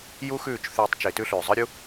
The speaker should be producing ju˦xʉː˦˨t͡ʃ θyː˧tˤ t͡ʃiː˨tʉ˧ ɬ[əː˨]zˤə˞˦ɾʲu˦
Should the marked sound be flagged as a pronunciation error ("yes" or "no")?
yes